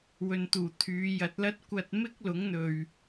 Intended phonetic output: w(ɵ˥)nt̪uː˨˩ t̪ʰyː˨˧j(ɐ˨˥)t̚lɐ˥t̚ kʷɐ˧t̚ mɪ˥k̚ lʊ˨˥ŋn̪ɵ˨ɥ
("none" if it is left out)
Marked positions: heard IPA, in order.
ɵ˨, ɐ˨˥

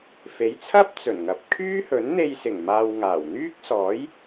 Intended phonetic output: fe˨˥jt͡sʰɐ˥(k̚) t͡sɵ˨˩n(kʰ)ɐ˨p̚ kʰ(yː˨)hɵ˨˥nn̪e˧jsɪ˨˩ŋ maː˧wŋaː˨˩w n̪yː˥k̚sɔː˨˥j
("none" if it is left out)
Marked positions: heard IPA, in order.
p̚, ŋ, yː˥

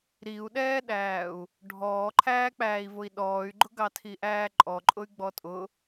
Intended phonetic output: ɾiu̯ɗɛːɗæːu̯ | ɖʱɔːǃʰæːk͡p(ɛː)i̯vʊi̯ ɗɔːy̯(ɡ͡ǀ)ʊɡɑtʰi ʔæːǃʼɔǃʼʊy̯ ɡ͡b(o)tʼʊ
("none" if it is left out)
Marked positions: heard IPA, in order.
æː, ɡ͡ǃ, ɔ

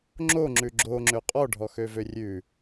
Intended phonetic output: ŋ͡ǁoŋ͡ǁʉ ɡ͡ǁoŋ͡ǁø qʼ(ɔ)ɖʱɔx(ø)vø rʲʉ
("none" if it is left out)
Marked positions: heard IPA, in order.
ɔ, ø

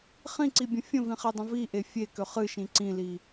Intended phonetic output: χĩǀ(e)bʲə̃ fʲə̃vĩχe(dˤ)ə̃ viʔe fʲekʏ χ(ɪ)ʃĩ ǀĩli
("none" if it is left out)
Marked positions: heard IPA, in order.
i, dˤ, ɨ

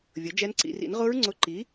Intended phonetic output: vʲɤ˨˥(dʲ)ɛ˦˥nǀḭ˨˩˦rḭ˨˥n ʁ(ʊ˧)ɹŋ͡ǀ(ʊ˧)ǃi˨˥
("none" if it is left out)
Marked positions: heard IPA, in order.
d͡ʒ, ʊ˦˥, ʊ˧

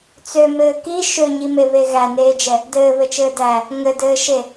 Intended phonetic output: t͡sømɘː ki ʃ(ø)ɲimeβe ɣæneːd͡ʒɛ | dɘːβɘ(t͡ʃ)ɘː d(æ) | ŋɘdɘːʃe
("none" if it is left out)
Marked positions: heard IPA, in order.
ø, t͡ʃ, æ

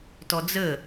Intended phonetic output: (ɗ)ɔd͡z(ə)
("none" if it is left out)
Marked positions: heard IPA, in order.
t, ə

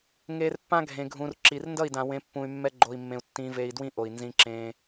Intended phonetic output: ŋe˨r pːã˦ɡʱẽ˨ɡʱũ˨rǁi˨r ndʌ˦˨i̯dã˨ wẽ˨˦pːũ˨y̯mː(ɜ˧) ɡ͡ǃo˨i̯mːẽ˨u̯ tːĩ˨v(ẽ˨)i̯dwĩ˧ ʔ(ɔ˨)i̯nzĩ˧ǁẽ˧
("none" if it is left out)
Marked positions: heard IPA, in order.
ɛ˧, e˨, o˨

